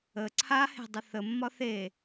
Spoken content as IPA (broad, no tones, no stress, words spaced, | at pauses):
ə ǀʰahe̤dˤə θəmːɒ θe